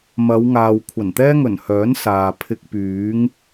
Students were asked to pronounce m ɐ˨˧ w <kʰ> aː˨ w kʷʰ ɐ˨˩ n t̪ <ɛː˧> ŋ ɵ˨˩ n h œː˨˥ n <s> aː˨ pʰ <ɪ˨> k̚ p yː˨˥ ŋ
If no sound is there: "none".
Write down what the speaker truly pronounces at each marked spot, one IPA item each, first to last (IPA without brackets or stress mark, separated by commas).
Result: ŋ, ɛː˥, s, ɪ˧